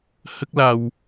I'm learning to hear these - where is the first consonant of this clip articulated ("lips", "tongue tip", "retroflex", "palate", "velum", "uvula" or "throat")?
throat